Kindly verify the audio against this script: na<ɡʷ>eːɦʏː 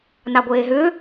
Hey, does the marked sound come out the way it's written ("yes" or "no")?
yes